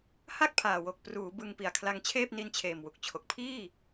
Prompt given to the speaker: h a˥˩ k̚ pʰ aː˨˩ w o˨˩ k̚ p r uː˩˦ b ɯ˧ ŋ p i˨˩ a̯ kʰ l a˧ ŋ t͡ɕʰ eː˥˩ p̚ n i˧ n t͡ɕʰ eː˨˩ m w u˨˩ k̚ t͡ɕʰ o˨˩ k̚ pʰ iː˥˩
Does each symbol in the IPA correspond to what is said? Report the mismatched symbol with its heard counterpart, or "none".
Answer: none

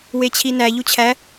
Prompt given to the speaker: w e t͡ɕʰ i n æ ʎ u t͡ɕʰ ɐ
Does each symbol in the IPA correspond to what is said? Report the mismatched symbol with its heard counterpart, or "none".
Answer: ɐ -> æ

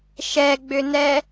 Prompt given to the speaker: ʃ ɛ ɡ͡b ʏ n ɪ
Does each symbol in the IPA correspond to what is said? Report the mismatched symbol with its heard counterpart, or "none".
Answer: ɪ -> ɛ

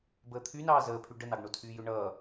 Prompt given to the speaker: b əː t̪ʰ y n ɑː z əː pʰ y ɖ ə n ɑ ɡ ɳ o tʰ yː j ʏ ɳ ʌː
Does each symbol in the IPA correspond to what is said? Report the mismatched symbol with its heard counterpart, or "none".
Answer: none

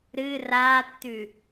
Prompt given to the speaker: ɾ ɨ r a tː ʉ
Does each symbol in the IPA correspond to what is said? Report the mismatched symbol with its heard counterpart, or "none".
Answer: none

